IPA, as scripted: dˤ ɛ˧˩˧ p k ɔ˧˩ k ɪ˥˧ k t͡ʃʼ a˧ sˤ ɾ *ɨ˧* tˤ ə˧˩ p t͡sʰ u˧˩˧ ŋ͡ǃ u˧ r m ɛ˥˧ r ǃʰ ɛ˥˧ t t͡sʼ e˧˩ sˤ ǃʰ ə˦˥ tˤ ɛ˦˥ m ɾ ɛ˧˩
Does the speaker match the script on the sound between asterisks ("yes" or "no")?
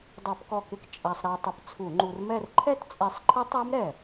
no